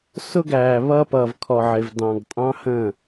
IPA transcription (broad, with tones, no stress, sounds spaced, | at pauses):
s ʊ˦ ɡ æː˨ β ʌː˦ p ʌː˨ v kʰ ɔ˨ ʕ ɪ˨ v d ɑ̃˨ ɡ tʼ ɑ̃˦ h ə̃˦˨